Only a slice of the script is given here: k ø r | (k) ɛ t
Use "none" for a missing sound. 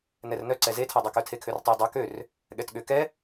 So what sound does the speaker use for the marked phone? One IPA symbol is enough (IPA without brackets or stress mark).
ɠ